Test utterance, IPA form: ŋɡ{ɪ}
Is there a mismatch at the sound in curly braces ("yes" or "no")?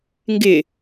no